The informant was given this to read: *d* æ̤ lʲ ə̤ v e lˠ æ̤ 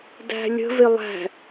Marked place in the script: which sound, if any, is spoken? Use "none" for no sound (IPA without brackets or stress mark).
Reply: d